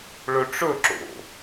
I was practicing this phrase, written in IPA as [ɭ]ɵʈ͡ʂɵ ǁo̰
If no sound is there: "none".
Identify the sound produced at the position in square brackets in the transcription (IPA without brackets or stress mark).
ɭ